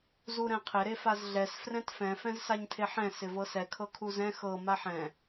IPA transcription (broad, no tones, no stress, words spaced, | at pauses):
zuɾɛ̃qʰɪ ɾefazɮɛs frɛ̃tfɛ̃ fɛ̃zsaɲtʰeħɛ̃ sɪvɤsɛ kʰɤkʰuzɛ̃ xɤ maħɛ̃